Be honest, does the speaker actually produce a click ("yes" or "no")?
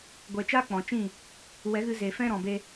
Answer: no